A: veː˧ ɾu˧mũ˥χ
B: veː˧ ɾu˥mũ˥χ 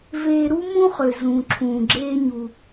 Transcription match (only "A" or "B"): B